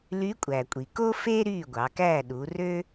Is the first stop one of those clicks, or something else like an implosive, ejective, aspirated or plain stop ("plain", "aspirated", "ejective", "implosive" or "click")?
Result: ejective